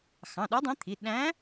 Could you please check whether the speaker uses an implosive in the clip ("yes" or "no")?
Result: yes